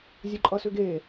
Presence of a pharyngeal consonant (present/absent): absent